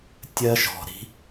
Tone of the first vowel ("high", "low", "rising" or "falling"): high